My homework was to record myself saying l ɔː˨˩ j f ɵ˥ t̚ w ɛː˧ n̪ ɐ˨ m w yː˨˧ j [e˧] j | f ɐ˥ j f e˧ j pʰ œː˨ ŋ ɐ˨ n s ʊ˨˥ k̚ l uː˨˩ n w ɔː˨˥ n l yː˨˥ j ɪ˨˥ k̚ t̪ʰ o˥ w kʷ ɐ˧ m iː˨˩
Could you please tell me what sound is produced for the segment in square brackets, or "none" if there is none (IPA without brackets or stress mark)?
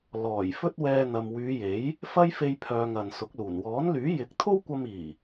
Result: e˨˥